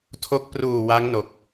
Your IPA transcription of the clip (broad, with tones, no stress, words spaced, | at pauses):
tʰo˦˥k̚ pruː˨˩ wa˦˥ŋno˨˩k̚